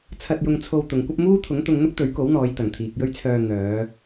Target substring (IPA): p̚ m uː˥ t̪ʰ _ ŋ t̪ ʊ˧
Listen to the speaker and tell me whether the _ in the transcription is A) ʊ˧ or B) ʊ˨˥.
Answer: B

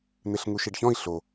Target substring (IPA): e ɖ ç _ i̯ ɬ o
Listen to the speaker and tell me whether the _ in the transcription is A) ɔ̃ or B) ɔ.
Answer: A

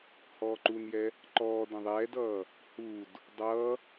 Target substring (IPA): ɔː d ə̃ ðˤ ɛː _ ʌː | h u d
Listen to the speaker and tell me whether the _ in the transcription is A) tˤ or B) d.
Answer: B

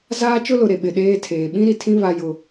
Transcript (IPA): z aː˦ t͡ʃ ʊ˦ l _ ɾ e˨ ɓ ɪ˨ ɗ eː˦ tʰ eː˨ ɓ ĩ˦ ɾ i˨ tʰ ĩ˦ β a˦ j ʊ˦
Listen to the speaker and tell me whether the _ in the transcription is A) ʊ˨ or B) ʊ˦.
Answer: A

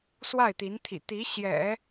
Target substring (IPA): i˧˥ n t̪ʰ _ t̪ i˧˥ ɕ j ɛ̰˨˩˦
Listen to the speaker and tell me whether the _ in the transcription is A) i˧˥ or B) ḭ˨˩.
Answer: B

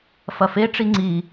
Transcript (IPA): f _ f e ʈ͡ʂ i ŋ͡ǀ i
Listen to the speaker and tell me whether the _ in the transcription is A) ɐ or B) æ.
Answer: A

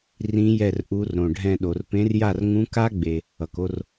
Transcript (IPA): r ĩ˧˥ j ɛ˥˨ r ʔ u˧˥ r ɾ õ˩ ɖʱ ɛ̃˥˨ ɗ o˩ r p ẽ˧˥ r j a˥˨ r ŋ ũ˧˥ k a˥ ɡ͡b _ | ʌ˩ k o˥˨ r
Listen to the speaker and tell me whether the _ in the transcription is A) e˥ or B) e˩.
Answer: B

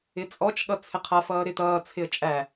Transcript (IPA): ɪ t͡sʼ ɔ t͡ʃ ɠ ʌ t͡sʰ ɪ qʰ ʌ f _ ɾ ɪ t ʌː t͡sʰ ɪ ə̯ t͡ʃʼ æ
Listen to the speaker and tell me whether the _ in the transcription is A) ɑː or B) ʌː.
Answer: B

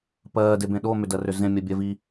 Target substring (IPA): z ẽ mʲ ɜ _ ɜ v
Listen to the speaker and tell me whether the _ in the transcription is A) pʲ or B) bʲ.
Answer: B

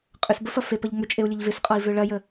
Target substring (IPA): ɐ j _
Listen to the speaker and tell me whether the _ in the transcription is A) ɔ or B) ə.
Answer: B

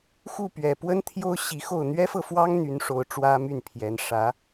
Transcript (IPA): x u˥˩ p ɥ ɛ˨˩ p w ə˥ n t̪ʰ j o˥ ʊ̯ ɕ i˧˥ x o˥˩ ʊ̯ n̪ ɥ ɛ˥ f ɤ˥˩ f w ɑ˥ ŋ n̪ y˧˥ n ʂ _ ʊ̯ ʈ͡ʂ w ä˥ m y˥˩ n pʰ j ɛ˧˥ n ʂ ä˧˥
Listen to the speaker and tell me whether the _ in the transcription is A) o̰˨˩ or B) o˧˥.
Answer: B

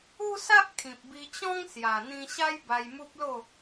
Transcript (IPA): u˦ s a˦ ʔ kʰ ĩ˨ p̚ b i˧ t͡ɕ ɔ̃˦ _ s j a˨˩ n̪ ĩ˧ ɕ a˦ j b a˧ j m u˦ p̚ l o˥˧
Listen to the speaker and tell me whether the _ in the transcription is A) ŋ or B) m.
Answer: A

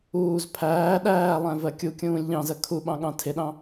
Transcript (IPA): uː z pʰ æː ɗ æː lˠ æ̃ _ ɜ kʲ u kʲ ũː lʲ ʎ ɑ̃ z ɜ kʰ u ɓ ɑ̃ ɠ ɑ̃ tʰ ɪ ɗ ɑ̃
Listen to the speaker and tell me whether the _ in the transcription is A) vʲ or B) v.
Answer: B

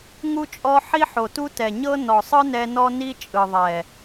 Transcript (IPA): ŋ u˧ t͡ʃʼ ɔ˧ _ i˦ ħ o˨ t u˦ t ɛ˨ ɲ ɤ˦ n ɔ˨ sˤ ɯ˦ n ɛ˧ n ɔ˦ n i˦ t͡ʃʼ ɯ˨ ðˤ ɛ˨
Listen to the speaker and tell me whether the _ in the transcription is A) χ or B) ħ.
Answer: B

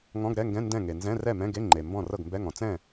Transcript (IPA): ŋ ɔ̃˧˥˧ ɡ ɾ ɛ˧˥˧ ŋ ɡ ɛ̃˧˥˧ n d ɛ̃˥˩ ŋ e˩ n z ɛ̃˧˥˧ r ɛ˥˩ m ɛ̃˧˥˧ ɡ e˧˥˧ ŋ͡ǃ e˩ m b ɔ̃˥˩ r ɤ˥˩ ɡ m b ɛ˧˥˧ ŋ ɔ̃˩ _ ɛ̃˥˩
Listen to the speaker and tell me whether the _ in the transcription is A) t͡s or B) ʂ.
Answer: A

